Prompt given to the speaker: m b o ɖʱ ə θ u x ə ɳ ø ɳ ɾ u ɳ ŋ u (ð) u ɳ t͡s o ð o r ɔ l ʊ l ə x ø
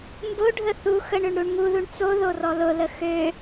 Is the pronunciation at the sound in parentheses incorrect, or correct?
correct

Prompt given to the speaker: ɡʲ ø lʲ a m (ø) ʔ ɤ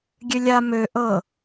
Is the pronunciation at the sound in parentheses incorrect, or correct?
correct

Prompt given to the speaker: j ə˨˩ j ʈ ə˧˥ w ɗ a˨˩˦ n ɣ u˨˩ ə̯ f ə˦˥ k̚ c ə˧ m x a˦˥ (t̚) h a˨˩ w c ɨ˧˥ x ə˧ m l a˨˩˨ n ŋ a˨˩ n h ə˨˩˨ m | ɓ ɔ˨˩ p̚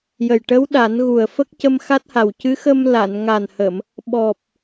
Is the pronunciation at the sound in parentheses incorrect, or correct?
correct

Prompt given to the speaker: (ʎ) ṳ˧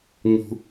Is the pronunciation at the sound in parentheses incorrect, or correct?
incorrect: ɲ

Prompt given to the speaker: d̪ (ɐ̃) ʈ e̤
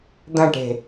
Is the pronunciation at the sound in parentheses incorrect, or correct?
correct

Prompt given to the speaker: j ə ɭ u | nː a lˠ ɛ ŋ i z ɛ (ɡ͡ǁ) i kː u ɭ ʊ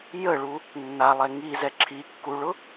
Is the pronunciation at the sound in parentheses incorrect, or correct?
incorrect: ǁʰ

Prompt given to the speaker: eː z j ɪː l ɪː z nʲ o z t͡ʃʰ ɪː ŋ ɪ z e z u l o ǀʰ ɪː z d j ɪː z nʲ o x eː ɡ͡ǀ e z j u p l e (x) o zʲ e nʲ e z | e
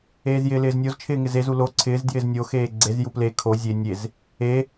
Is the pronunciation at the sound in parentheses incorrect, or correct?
incorrect: kʰ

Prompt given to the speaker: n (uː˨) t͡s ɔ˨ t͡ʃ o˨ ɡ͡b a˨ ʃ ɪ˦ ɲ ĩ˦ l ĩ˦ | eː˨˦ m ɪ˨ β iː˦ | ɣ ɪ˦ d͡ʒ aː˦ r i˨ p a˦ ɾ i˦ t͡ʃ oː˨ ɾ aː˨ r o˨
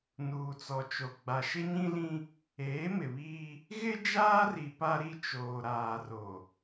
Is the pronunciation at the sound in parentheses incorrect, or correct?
correct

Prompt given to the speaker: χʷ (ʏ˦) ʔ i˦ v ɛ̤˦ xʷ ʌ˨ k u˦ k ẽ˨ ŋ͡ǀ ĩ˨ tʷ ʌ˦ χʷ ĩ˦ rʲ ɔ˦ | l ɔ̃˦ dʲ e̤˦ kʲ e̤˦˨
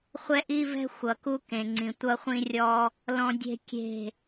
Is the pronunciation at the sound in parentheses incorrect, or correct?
incorrect: ɛ˦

